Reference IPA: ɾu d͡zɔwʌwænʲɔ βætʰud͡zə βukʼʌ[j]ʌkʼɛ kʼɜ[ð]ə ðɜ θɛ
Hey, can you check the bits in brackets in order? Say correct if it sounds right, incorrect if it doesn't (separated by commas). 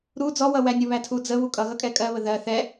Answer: incorrect, incorrect